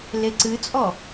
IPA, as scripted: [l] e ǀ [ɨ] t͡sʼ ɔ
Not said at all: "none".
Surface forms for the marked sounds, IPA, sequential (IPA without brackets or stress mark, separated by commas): l, ɨ